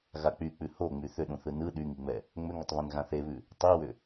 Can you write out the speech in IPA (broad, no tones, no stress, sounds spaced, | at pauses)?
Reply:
ɣ a k͡p y k͡p ʉ h o ŋ͡m y θ ʏ ɗ ũ θ ɯ n ɯ ɗ y ŋ i ŋ͡m ɛ | ŋ͡m ʏ ŋ ʏ tˤ β ɛ̃ n ɣ ã θ e β ʉ | tˤ i w ʏ